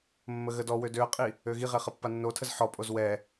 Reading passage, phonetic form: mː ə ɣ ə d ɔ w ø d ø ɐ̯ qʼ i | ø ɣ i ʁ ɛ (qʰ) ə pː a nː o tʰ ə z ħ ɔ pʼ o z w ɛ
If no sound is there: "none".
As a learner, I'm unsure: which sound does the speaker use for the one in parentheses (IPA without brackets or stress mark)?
χ